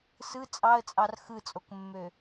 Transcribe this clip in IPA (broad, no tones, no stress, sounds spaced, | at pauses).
s ɯ t͡sʼ ɑ ə̯ t͡sʼ ɑ r x ɯ t͡sʼ o k mː ø